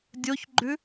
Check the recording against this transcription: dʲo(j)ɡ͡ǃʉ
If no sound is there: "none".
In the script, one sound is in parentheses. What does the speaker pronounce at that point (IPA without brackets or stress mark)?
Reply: ç